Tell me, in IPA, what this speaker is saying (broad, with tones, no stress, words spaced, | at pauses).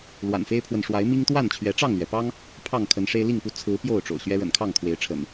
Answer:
lwa̰˨˩nfe˦ɪ̯pʰwə˨n ʂwa˨˦ɪ̯mi˦ŋ t̪wa˥˨nt͡ɕʰɥɛ˨˦ ʈ͡ʂɑ˥˨ŋlɥɛ˩pɑ˦ŋ | pʰɑ˥˨ŋkʰə˨˦nʂe˦ɪ̯ li˥˨ŋpu˥˨ t͡sʰɹ̩˨˦ pjo˥˨ʊ̯ʈ͡ʂo̰˨˩ʊ̯ɕɥɛ˦ ɻə̰˨˩nkʰɑ˥˨ŋkʰwe˨˦ɪ̯ʈ͡ʂʰə̰˨˩n